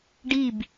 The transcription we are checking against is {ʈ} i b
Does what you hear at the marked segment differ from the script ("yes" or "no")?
yes